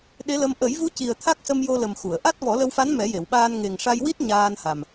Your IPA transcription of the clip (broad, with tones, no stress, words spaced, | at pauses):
ɗe˧˥lə˧m ʔə˨˩˦jvu˧˥ci˨˩ə̯ t̪ʰa˦˥k̚sə˧mjo˧lə˨˩m xu˨˩˨ə̯ ʔa˦˥t̚ vɔ˨˩˦lə˧wfa˧˥n mɛ˨˩˦je˨˩˨wɓaː˧n ŋe˨˩ŋʂa˧jwi˦˥t̚ ɲaː˧nha˨˩m